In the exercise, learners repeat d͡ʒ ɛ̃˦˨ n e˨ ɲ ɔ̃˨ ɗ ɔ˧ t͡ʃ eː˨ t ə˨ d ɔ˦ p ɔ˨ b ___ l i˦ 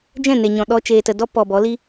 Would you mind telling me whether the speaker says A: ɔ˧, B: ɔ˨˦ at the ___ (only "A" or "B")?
B